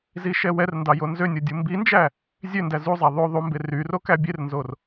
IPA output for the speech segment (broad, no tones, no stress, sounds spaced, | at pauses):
z i ʃ ɛ w ɛ r n d ɑ j o n z ø nʲ o dʲ u m b i n d͡ʒ æ | zʲ ø n d æ z u zˤ æ ðˤ o ðˤ u m b e r y r o k æ bʲ e r n z o r